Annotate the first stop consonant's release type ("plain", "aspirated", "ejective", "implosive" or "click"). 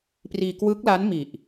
plain